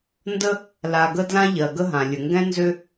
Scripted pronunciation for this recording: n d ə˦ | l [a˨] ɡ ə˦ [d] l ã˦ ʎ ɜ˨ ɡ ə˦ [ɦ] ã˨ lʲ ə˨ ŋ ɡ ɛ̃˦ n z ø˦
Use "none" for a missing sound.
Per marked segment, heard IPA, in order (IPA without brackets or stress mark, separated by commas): a˨, d, ɦ